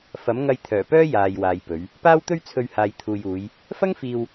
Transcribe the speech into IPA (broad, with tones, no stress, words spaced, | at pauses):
fɐ˨˥mŋɐ˧jt̪ʰœː˨˩pœː˥ jaː˨jwaː˨j pɵ˨˧ɥ | paː˥wt̪ɵ˥ɥt͡sʰɵ˧ɥ haː˨jt̪ʰuː˨juː˨˧j | fɐ˥ŋfiː˧w